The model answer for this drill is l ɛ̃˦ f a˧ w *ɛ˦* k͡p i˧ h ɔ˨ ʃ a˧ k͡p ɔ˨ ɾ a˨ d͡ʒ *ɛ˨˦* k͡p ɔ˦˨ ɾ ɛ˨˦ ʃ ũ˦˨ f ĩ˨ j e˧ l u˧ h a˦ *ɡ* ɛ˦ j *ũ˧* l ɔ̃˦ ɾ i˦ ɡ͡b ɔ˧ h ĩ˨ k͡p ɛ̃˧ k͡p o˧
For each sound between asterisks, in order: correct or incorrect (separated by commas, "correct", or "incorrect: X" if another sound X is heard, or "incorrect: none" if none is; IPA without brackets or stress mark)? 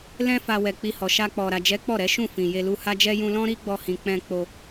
incorrect: ɛ˨, correct, incorrect: d͡ʒ, correct